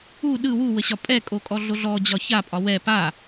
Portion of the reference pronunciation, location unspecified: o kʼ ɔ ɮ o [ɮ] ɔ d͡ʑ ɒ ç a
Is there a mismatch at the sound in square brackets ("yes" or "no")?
no